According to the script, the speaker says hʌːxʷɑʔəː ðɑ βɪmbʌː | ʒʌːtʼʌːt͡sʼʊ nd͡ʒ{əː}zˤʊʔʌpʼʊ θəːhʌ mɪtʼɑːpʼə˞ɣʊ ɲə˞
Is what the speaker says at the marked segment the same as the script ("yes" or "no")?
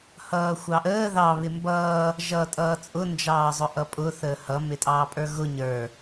no